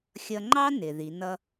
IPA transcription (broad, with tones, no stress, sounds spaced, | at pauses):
xʲ ʌ˧ ŋ͡ǃ ɑ˥ n ɪ˩ ð i˩˧ n ʌ˥